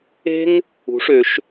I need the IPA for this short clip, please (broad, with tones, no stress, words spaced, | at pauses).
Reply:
e̤˥ŋ | ṳ˩˥ʂø˨˩˦ʃ